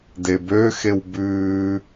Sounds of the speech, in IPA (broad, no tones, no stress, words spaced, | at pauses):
debø xewbʉː